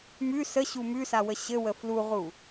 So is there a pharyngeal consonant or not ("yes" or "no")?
no